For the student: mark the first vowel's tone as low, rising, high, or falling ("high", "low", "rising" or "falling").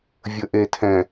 low